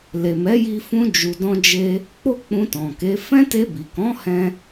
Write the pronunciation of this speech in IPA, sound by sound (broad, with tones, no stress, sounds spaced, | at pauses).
l e˨ m ɛ˨˦ j i˧ f ũ˧ d͡ʒ u˨ d ɔ̃˧ d͡ʒ e˧ | k͡p o˦ k͡p ũ˧ t ɔ̃˨ k e˨˦ f ɛ̃˦ t e˧ b i˨ k ɔ̃˨˦ h ɛ̃˦